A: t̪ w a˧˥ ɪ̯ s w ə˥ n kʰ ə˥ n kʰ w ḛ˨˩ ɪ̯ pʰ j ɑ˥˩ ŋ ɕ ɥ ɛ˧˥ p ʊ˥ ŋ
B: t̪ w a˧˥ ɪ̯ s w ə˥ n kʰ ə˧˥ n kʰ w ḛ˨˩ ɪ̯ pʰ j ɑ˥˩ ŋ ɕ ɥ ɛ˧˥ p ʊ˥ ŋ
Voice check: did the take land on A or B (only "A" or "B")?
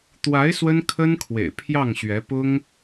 A